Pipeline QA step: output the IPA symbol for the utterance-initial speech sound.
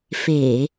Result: f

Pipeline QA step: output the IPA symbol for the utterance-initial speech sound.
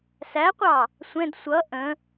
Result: s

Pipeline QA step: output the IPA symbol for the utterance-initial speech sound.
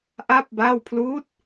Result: ʔ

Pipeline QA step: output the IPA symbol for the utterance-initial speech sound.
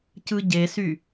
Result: c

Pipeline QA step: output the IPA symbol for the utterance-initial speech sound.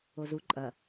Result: o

